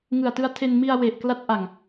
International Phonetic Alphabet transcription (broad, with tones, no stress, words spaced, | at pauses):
ŋɯ˨˩a̯tɯ˧a̯tʰe˧n mi˧a̯ we˨˩ʔkla˦˥t̚ʔa˨˩ŋ